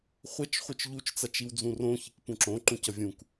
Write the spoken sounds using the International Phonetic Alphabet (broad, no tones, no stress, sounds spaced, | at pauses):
χʷ ɛ t͡ʃ χʷ ɯ t͡ʃ ʎ u t͡ʃ t͡s a t͡ʃ i w d͡z ũ r õ ç i k p ũ ǁ õ ǃ ũ c ʌ vʲ ũ k